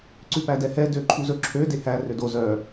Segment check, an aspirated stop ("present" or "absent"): present